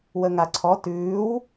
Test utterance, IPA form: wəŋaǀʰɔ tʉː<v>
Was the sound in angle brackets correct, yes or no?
no